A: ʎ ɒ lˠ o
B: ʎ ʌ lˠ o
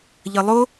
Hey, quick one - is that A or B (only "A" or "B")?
B